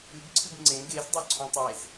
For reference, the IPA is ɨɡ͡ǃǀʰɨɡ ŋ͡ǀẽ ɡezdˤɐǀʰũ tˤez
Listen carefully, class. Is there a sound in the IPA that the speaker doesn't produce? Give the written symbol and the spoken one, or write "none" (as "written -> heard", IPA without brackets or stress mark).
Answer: ɡ͡ǃ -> ɡ